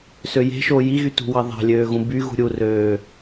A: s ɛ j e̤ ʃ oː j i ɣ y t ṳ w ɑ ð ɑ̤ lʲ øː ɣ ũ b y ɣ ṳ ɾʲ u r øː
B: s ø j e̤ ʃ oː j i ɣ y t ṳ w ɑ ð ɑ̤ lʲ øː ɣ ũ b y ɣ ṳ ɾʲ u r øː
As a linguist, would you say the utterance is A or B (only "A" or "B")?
B